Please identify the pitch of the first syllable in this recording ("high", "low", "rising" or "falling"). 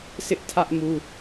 high